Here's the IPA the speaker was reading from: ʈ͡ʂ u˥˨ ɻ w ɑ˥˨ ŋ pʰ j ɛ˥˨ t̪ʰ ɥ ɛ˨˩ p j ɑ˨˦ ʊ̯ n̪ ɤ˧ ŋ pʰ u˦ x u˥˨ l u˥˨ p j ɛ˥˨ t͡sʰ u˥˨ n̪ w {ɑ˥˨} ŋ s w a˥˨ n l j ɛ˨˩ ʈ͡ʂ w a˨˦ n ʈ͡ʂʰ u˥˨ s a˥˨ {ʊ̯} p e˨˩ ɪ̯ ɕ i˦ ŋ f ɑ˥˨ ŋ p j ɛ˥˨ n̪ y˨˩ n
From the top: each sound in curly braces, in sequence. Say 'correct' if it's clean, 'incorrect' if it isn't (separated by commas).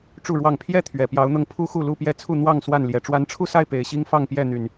correct, incorrect